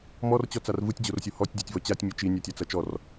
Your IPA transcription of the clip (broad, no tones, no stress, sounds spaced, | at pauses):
m ɔ r t͡ɕ ɔ t͡s a r v ɯ tʲ d͡ʑ o r sʲ o h ɔ tʲ dʲ ɒ tʲ v ɔ t͡ɕ a tʲ mʲ œ t͡ʃ i nʲ a tʲ a t͡s ɐ t͡ʃ ɔ r